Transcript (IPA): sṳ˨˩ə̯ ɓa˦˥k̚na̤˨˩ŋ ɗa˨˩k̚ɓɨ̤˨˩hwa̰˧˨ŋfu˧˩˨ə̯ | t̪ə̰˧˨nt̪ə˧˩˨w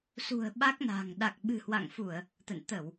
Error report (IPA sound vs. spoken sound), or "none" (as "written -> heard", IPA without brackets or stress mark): none